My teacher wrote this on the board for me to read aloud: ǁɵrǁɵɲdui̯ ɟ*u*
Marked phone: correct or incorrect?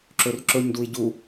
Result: correct